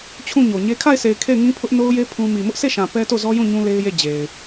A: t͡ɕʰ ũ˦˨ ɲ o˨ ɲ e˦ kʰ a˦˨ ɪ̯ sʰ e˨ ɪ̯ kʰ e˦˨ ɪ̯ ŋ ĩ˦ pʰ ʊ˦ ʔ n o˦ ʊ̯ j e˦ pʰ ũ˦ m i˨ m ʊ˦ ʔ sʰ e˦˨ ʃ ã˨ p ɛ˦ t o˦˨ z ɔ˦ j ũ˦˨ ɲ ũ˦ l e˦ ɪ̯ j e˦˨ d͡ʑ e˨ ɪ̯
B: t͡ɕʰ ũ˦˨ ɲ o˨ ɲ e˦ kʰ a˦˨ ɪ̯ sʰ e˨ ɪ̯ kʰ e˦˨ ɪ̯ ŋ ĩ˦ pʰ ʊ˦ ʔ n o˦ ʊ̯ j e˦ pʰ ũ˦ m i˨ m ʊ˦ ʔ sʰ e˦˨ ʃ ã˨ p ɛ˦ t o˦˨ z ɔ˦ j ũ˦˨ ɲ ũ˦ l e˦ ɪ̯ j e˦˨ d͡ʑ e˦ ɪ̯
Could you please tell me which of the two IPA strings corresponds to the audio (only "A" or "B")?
A